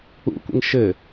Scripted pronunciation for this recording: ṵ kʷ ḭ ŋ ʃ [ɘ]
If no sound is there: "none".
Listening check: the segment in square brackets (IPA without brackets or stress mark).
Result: ɘ